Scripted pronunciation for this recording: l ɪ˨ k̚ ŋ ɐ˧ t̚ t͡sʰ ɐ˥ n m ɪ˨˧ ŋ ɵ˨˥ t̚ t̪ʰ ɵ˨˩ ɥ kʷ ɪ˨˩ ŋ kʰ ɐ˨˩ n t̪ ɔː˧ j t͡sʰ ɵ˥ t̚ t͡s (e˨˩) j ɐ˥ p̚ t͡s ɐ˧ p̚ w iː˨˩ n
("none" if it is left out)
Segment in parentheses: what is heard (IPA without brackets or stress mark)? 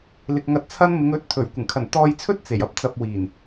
e˨˩